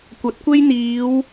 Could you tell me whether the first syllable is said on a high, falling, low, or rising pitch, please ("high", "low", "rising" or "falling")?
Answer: rising